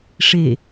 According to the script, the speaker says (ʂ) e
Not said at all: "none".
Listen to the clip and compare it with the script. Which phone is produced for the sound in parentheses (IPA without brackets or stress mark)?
ʂ